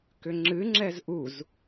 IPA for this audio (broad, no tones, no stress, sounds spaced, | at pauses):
k ʏ ŋ͡ǁ ɨ ŋ͡ǁ ɛ z ʔ u z